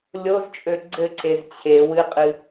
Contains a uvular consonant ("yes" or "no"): yes